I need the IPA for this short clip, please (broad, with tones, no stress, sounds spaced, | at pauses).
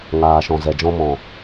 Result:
ŋ aː˨ ʃ ɔ̃˨ z ɛ˨ d͡ʒ ɔ̃˦ m ɔ̃˨